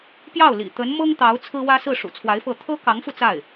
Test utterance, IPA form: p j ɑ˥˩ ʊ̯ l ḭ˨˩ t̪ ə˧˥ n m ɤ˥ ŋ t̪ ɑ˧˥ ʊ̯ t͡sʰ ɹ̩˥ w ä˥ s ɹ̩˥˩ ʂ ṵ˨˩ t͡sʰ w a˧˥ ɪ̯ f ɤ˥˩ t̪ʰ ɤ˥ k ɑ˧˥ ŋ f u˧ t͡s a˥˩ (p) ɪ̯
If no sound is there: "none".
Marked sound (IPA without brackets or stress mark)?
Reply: none